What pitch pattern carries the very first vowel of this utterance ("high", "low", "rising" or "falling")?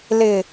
low